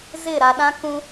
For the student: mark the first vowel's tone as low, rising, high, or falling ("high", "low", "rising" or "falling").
falling